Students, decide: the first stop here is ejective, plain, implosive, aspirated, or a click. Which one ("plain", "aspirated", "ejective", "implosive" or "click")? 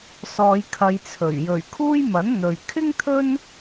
aspirated